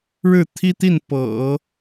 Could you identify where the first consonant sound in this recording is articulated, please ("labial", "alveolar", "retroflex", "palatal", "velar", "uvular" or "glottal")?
retroflex